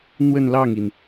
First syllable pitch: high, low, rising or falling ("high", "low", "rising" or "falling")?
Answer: falling